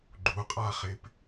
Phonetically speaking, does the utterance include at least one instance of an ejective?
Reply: yes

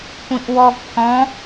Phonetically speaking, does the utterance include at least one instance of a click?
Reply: no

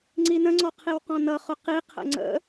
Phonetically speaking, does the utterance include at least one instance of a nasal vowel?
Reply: yes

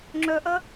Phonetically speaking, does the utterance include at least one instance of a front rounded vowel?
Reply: yes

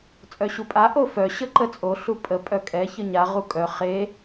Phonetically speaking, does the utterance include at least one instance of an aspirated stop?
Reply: no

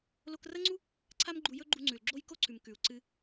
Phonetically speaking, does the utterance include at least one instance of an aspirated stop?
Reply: yes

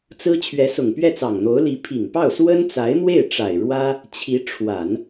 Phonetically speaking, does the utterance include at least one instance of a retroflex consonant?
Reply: yes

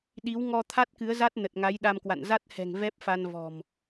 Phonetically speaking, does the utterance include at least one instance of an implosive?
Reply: yes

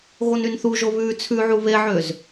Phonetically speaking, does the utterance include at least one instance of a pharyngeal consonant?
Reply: yes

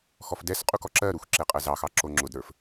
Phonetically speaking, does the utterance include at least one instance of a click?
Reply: yes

